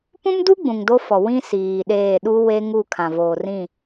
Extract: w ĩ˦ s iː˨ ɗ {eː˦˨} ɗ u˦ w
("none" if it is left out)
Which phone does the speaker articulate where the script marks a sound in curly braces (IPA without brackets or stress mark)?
eː˦˨